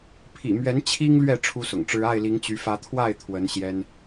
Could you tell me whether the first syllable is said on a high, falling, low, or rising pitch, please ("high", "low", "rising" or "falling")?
low